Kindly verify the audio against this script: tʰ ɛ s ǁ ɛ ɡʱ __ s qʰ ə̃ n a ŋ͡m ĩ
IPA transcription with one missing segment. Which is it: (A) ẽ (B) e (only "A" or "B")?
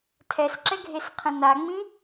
B